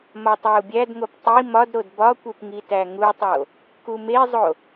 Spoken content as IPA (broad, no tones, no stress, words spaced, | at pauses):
mɒtˤæu̯bʲædŋop tˤi mɒdɾod bɒkʷep ŋitæŋutˤo | kumezˤo